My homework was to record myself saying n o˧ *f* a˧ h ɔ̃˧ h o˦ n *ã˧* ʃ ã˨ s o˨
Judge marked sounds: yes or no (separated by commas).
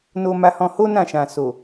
no, no